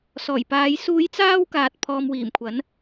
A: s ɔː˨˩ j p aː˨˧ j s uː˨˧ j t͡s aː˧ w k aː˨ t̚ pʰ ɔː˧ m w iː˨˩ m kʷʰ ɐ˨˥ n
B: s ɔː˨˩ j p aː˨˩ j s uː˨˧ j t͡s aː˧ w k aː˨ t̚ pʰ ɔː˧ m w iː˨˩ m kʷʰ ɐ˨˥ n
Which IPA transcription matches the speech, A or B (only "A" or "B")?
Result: A